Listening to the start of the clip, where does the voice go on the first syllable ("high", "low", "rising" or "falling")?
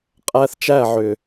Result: high